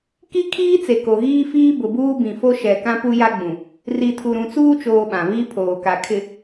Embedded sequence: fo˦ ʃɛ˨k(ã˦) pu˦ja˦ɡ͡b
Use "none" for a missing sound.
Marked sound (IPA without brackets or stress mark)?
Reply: ã˦